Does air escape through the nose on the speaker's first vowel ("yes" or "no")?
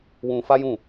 yes